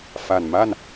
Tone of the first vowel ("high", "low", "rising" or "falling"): low